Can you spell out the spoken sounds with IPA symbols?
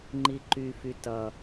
ŋ͡ǃ i ǃ y f y t ʌ

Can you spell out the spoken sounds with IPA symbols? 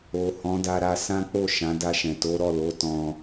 o˨ h ɔ̃˨˦ d a˧ ɾ a˧ s ã˦ k͡p o˦˨ ʃ ã˨˦ d a˧ ʃ ɛ̃˨ t o˨˦ ɾ ɔ˦˨ l o˨˦ t ɔ̃˦

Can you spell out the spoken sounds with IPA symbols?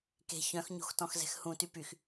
k e̤ ç œ̃ x ɲ o̤ x t ɔ̃ x z ɛ̤ x h ũ t y p y x

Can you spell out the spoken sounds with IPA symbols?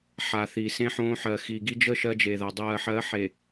ħ a˨ θ i˨ s ẽ˦ ħ õː˦ ħ ɜ˨ x iː˨ ɡ i˦ d͡ʒ ə˦˨ ʃ ɜ˦ d͡ʒ e˨ ð a˨ dˤ ɜː˨ ħ ɜ˨˦ ħ e˨

